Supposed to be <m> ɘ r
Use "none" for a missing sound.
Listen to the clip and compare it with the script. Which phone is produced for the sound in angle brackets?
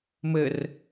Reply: m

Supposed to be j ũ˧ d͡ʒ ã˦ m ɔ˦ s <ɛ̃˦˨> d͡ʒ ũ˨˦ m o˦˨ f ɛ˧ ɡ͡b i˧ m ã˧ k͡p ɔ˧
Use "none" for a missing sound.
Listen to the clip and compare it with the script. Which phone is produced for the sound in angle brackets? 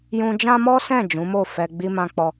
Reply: ɛ̃˦˨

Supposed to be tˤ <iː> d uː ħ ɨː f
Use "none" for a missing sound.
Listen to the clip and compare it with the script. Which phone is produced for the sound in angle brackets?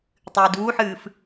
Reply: ɨː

